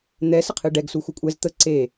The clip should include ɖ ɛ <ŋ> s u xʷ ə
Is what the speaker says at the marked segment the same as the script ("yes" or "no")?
no